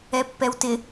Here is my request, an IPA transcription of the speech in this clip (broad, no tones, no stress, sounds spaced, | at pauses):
ɛ pː ɛ w t ɪ